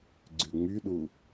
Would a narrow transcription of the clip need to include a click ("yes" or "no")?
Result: yes